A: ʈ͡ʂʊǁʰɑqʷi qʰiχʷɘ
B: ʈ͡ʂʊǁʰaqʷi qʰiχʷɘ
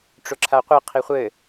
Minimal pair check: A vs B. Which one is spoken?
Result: B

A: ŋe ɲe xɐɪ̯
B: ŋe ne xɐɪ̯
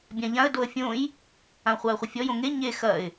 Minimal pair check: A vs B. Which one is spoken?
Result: A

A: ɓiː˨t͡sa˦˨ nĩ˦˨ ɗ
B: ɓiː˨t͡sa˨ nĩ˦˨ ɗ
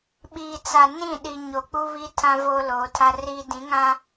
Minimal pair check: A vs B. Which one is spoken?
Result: B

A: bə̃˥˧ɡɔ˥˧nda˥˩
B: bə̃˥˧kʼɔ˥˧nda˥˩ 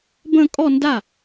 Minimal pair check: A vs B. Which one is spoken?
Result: B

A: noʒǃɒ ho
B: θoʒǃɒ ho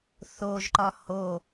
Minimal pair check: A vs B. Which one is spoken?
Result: B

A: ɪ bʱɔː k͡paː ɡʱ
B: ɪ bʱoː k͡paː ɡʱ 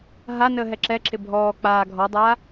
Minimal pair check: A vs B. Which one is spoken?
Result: A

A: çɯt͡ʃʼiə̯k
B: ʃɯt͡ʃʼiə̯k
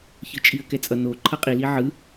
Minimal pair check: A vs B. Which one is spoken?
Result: A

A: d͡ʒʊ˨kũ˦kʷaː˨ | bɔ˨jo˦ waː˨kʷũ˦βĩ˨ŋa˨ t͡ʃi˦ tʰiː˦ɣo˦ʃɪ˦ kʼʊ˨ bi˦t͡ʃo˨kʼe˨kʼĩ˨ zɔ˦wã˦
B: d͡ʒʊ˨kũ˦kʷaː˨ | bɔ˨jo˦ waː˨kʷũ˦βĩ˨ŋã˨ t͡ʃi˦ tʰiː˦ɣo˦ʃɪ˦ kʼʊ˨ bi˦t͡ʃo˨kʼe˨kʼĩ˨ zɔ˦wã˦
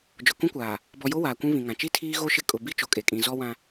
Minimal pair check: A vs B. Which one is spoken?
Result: B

